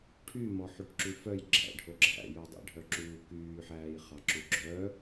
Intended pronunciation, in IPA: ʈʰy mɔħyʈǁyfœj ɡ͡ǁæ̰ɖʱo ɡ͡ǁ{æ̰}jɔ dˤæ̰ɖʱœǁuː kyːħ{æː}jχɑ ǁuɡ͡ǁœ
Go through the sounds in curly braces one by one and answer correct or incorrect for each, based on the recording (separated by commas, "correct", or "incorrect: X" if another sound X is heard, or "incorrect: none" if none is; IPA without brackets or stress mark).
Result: correct, correct